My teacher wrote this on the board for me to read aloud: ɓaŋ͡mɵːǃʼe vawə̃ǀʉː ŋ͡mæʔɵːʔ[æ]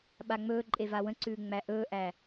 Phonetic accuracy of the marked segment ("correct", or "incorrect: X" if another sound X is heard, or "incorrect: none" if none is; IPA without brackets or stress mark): correct